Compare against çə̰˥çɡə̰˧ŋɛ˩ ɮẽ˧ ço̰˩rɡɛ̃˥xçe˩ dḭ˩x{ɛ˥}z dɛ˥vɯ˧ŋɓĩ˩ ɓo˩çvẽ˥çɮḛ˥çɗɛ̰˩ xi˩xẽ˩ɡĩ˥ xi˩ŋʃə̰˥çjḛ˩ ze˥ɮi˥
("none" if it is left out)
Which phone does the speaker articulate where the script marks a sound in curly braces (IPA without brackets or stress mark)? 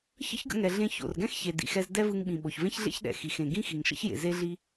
ɛ˧